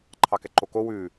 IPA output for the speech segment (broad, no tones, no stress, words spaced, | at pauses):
ǃʰɑkɛǃoko wʉː